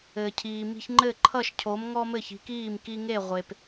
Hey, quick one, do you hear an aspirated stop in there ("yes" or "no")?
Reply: yes